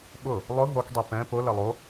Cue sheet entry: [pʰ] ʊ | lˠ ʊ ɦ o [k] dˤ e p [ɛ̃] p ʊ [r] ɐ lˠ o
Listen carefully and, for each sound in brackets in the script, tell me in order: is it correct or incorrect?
incorrect: ɓ, correct, correct, incorrect: l

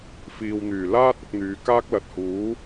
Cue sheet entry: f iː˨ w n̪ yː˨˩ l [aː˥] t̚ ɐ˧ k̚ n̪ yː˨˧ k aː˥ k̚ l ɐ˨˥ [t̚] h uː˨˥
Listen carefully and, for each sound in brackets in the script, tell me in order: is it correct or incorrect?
correct, correct

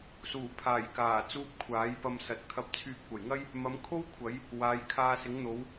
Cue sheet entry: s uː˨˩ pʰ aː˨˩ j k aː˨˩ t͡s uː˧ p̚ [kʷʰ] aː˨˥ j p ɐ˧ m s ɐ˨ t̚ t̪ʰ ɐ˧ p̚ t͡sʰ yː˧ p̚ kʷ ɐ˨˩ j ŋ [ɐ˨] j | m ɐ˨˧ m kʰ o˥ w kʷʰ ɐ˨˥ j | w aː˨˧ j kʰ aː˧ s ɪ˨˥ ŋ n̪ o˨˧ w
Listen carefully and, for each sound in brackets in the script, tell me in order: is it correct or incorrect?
correct, incorrect: ɐ˥

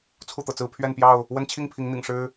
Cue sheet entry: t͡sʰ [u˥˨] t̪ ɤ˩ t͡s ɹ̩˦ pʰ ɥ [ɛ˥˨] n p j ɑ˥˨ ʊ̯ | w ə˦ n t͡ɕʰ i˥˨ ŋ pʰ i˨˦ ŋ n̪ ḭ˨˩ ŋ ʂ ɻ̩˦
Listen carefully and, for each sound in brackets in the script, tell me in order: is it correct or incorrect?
correct, correct

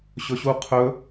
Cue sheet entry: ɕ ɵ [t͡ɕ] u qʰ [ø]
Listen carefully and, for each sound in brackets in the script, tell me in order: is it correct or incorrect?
incorrect: ɕ, incorrect: ɵ

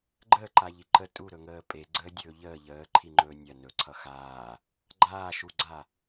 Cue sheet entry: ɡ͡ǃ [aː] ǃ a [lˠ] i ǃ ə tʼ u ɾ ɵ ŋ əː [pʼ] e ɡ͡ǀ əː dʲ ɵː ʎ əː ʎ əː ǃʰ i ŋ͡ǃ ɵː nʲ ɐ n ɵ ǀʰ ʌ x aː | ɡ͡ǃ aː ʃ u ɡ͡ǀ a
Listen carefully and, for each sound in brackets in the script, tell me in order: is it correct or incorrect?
incorrect: əː, incorrect: ʎ, correct

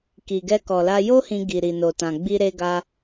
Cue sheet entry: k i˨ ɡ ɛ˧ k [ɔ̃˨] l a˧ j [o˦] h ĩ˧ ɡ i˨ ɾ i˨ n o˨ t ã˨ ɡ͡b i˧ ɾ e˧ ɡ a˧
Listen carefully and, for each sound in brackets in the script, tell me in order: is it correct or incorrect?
incorrect: ɔ˨, correct

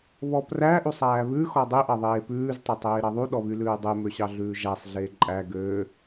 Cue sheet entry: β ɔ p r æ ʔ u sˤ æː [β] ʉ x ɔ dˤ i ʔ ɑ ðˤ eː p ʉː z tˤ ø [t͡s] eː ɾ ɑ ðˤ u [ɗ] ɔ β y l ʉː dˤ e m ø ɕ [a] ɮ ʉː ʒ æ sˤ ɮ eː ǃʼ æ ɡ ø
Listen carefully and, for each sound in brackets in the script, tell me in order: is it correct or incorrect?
correct, incorrect: tˤ, correct, incorrect: ɑ

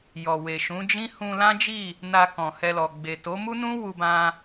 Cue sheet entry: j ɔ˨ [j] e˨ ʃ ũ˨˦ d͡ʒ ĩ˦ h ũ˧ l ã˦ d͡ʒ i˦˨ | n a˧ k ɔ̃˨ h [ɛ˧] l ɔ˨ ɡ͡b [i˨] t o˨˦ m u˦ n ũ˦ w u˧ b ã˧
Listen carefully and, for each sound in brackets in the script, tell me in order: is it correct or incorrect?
incorrect: w, correct, incorrect: e˨

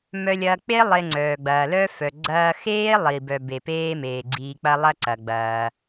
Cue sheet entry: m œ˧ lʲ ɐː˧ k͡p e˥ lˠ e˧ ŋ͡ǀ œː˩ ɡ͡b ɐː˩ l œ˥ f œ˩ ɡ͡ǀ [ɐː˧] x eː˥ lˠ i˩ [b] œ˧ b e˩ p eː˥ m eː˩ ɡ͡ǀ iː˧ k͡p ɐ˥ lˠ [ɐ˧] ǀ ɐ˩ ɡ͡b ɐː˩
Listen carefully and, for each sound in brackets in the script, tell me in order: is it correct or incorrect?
correct, correct, incorrect: ɐ˥

